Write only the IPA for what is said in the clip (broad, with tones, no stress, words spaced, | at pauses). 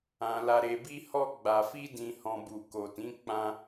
ã˨ la˨ɾe˨bi˧ hɔ˧ ɡ͡ba˨ fi˧dĩ˨hɔ̃˨ bu˨ ko˨tĩ˨˦ k͡pã˧